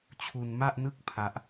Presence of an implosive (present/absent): absent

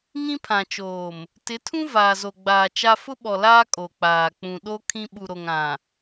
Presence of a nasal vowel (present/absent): present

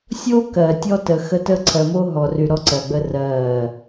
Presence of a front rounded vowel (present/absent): present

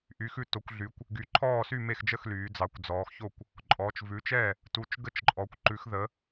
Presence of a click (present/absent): present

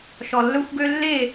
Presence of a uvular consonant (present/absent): absent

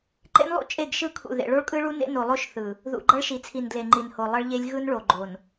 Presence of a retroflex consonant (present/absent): present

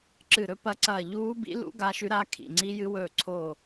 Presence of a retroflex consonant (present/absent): absent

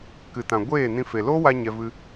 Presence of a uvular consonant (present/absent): absent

